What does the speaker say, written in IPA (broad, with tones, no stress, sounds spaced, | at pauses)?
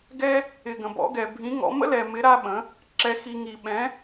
ɡ ɛ˥ | ɪ˧ ɡ ə̃˧ b ɔ̰˧˥ ɡ ɛ˧ bʱ ĩ˧˥ ŋ ɔ̰˧˥ m ə̰˥ l ɛ˧ m ɪ˧˥ ɾ a˥ ɓ ə̃˧˥ | ǁ ɛ˥ x i˥ ŋ i˥ ɓ ɛ̃˧˥